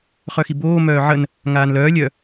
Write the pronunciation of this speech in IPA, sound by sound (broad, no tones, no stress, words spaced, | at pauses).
χœxiboː mœːʕən | ŋaːnlœː lʲœ